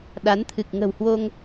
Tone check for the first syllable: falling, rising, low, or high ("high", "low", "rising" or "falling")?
rising